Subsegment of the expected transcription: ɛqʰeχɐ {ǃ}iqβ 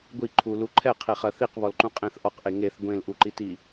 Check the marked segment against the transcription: incorrect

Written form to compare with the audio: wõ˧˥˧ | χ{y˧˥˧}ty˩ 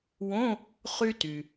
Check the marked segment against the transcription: incorrect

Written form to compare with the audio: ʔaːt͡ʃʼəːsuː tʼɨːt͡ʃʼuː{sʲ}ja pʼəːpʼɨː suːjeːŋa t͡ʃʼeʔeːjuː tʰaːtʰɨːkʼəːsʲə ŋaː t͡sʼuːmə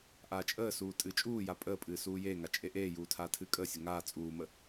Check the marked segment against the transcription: incorrect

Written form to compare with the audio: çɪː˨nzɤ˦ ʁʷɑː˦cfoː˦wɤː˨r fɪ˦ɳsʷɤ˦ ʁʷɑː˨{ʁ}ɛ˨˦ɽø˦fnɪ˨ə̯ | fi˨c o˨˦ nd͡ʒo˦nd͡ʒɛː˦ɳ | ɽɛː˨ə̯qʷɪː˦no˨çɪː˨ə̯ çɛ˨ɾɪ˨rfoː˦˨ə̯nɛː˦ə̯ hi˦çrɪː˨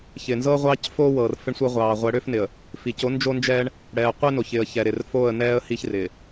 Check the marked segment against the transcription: incorrect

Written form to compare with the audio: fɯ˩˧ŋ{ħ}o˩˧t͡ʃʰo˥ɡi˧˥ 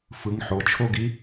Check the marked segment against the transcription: correct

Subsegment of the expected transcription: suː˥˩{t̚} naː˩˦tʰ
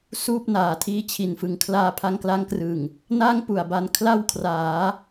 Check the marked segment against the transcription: incorrect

